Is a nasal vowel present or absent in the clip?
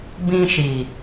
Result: present